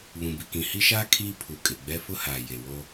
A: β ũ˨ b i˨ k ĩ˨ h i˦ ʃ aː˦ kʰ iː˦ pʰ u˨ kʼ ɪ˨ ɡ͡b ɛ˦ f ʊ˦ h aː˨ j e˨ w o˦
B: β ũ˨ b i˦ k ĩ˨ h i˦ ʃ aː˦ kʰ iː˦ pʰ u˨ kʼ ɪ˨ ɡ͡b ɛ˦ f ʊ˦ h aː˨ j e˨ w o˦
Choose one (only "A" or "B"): A